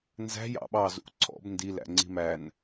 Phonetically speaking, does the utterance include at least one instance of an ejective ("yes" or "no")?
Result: no